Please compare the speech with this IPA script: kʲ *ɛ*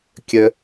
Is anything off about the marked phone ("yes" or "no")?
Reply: yes